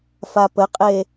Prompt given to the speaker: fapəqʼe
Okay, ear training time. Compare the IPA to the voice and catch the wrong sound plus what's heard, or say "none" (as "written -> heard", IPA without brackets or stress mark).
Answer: none